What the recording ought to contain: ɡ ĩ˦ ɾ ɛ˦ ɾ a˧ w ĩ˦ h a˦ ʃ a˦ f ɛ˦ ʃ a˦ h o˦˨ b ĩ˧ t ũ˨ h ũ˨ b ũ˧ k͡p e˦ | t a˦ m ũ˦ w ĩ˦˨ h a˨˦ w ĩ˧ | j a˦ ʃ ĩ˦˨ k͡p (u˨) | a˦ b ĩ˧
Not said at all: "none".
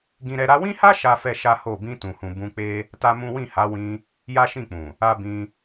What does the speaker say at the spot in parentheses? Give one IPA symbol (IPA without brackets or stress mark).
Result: ũ˨